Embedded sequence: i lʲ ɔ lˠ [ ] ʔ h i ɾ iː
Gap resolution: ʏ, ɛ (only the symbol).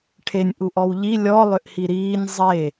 ʏ